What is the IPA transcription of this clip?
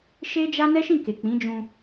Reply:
ʃ e˦ d͡ʒ a˦ n ɛ˦ ʃ ĩ˦˨ k e˨ k͡p ĩ˨˦ d͡ʒ ũ˧

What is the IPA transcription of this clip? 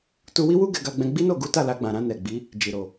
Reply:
t u˧ w i˦ w u˦ ɡ ɛ˧ ɡ a˧ ɡ͡b ɛ̃˧ ɡ͡b i˦ n o˦˨ ɡ u˨˦ t a˦˨ l a˧ ɡ͡b ã˨ ɾ ã˧ n ɛ˨ ɡ͡b i˨˦ | d͡ʒ i˨ ɾ o˨

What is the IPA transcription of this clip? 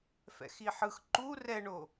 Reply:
f ɛ̰ x i ħ ɯ x ǃ u r ɛ ɳ o

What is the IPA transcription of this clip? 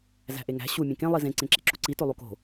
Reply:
z æ̤ ʔ e ŋ æ̤ ɕ u mʲ ẽ k ẽ lˠ i z ẽ ǀ ẽ ǁ ḛ ǁ u ǀ i t o lˠ u k o̤

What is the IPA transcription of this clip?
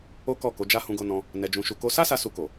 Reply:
o˦ k ɔ˦˨ k o˨˦ d͡ʒ a˦ h ũ˧ ɡ o˧ n ɔ̃˧ | n ɛ˧ d͡ʒ ũ˧ ʃ u˧ k o˧ s a˦ s a˧ s u˧ k o˨

